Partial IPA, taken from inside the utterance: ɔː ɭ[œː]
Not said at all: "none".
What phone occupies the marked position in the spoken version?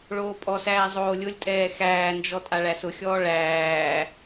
æː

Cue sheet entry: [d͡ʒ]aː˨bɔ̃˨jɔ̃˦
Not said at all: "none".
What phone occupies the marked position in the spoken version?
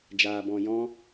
d͡ʒ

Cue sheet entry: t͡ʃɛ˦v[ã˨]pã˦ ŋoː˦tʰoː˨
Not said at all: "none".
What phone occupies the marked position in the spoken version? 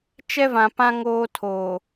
ã˨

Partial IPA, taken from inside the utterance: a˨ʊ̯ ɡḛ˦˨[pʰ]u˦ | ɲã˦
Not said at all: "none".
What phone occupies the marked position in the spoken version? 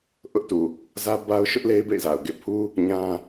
pʰ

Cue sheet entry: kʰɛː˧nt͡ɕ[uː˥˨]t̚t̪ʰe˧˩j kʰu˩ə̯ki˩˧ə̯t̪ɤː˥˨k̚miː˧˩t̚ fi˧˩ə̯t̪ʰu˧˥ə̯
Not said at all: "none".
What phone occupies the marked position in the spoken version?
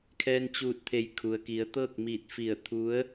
uː˧˩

